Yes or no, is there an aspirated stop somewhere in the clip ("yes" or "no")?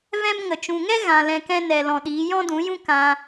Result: no